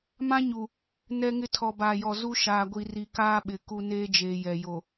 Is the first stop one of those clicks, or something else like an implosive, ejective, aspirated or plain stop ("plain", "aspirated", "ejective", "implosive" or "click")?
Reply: aspirated